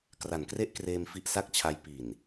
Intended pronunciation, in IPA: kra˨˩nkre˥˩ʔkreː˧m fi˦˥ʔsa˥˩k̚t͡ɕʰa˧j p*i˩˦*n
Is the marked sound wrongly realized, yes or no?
yes